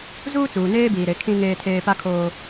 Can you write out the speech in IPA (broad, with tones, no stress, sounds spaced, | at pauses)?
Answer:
z uː˦ t͡s uː˨ n eː˦ b iː˨ ɾ e˨˦ kʰ ĩ˦ ŋ eː˦ tʰ eː˦ p a˦ kʰ oː˦